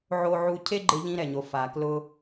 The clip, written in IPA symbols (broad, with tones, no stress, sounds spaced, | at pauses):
ʕ o˧ ʕ u˧ cʰ e˥ ɡ͡ǃ ɪ˧ ʎ ĩ˧ ɾ ɛ˩ ɲ o˩ f a˩ k l ʊ˧